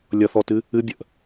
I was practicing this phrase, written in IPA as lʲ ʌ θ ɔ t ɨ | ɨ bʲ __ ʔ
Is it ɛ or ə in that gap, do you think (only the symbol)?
ə